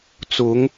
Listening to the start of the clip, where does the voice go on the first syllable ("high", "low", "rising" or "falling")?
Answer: rising